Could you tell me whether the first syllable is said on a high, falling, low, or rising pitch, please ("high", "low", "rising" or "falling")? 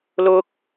high